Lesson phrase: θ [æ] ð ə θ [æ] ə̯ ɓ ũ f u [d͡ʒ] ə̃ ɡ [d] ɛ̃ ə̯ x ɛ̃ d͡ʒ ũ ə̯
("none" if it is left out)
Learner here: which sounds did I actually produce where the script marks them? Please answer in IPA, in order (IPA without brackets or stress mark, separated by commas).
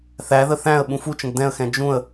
æ, æ̃, t͡ʃ, d